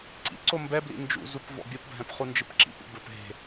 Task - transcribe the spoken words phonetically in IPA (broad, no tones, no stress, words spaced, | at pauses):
ǀḭǀo mbɛblḭ nd͡ʒṵzup vɔ̰bʲopbʱɛ̃p χund͡ʒɨpǁḭpṵ bɘp ɦe̤